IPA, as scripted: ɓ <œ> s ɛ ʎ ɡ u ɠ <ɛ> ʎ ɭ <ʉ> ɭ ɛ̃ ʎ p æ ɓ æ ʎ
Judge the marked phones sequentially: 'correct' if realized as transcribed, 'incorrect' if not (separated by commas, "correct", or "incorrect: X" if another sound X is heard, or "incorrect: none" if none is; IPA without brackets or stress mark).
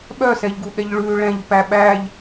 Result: correct, correct, correct